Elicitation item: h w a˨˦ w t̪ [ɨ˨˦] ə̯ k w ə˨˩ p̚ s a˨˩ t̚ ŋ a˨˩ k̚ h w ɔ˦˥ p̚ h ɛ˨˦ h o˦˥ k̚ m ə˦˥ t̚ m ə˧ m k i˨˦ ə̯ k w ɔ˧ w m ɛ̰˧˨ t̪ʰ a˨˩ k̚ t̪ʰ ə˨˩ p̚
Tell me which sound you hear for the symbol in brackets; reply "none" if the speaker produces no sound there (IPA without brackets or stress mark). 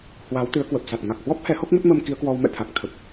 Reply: ɨ˨˦